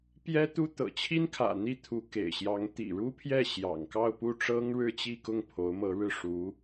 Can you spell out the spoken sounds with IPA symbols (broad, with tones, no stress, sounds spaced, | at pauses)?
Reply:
p j ɛ˥ t̪ u˥ t̪ ɤ̰˨˩ t͡ɕʰ i˥ n kʰ ä̰˨˩ n̪ i˥˩ t̪ʰ u˧˥ k ḛ˨˩ ɪ̯ ɕ j ɑ˧˥ ŋ t̪ ḭ˨˩ ɻ u˥ pʰ j ɛ˥˩ ɕ j ɑ̰˨˩ ŋ k ɑ˥˧ ʊ̯ p u˥˩ ʈ͡ʂ ɤ˥ ŋ ɻ ɻ̩˥˧ t͡ɕ i˥˧ k ʊ˥˩ ŋ pʰ o˧˥ ʊ̯ m ɤ˧˥ ɻ ɻ̩˥˩ ʂ u˧˥